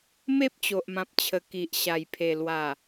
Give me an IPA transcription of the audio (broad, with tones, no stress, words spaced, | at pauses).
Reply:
me˦p̚t͡ɕo˨ʔmã˨p̚t͡ɕʰə˨˩ ki˨ʔɕa˨˩jpʰe˨˩lwa˨˩